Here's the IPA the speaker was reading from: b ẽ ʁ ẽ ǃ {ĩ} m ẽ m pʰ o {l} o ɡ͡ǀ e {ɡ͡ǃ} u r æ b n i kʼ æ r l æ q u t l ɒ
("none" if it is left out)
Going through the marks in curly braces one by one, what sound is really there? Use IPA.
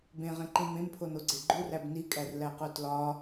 ĩ, n, ɡ͡ǃ

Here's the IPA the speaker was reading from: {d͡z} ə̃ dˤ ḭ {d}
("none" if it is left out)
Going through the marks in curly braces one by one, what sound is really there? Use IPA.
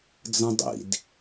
d͡z, d

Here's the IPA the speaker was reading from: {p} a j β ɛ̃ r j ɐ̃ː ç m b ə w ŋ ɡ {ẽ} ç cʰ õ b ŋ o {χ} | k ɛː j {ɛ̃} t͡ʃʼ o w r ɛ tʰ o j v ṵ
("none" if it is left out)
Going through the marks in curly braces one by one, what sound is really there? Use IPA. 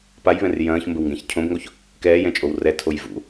p, ɛ̃, ç, ɛ̃

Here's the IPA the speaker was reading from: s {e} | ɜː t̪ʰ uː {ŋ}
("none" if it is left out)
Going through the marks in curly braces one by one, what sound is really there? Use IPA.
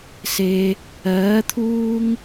e, ŋ

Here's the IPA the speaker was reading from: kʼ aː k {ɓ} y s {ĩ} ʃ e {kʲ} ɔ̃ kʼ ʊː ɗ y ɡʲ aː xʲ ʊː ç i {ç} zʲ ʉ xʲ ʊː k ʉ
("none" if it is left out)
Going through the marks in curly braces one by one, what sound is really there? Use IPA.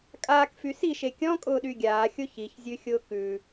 f, i, kʲ, ç

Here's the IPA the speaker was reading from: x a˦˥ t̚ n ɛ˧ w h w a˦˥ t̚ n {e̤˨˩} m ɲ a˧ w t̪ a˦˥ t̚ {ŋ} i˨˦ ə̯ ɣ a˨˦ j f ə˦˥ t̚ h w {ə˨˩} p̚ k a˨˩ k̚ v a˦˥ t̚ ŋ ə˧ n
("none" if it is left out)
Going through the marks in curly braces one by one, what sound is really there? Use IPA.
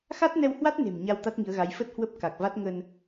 e̤˨˩, ŋ, ə˦˥

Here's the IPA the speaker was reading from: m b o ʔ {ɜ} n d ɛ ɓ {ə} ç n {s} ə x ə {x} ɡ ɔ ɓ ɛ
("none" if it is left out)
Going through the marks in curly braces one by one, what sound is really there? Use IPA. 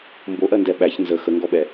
ɜ, æ, z, ŋ

